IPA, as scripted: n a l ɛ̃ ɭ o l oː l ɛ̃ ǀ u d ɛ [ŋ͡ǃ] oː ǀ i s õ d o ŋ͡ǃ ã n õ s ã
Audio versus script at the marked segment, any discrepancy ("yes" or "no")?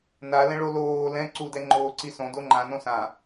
no